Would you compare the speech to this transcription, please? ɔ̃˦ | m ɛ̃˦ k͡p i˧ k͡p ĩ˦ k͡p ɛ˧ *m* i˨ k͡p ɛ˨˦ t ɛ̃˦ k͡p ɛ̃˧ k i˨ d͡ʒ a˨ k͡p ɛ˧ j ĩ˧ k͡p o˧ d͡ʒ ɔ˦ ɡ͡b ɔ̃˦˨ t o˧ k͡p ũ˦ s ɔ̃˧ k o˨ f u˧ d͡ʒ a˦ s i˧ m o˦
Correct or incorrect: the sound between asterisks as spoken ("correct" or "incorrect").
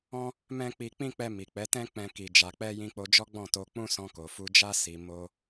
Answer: correct